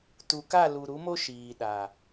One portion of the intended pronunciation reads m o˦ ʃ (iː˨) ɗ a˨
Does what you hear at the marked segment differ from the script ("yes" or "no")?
no